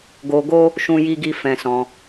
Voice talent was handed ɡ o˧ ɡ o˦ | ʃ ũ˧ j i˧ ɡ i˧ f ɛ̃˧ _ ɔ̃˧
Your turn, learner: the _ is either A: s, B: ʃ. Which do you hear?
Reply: A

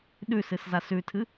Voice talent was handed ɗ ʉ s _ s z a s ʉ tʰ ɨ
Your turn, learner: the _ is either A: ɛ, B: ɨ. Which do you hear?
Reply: B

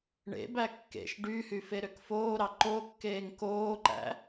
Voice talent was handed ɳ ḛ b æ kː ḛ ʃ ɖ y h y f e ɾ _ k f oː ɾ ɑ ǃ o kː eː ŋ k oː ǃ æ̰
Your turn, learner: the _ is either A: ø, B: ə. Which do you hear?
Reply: A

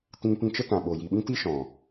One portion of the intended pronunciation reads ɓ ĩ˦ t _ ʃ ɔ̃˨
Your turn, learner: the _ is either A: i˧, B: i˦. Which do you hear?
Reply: B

